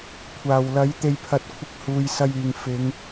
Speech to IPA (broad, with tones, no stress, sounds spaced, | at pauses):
kʷʰ aː˨˩ w l ɐ˨˥ j t̪ e˨ j pʰ ɐ˨ t̚ kʷʰ ɪ˨˥ k̚ h uː˨ j s ɐ˧ j yː˨ ŋ f ɪ˨˧ ŋ